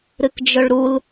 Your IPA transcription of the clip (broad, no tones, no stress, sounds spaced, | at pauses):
ɾ ɨ k d͡ʒ ɵ ɭ ɾ u l